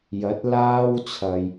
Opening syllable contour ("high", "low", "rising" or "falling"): rising